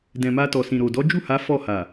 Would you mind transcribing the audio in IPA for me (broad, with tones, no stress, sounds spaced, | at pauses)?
d ɛ̃˨ m a˧ t ɔ˨ s ĩ˨ ɾ o˨ d ɔ˨˦ d͡ʒ u˦˨ h a˨˦ f ɔ˦˨ h a˨